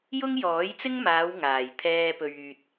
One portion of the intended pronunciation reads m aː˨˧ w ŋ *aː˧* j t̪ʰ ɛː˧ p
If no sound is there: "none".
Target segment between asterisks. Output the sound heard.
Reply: aː˨˩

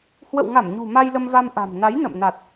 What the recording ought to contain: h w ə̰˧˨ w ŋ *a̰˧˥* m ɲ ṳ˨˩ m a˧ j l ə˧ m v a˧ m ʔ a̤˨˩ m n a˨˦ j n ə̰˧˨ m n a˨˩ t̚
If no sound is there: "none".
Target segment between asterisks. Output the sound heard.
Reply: a˧˩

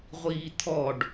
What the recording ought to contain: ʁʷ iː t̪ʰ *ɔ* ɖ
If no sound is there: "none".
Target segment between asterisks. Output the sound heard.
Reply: ɔ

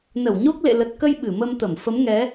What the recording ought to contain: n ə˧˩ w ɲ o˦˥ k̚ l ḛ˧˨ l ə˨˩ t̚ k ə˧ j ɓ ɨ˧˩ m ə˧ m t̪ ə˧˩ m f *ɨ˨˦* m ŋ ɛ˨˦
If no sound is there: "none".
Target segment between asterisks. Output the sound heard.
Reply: ə˨˦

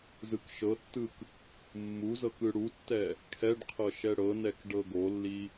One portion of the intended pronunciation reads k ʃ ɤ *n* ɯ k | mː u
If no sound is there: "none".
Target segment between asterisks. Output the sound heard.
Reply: tː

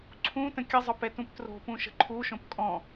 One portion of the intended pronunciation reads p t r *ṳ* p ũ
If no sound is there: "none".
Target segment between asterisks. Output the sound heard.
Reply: o̤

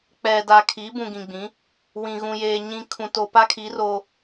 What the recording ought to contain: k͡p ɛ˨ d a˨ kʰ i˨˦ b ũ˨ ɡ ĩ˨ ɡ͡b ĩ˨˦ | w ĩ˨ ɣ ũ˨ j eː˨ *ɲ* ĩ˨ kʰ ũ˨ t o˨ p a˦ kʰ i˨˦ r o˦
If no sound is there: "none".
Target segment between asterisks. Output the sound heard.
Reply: ɲ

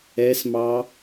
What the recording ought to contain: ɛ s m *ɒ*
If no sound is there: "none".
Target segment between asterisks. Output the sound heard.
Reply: ɑ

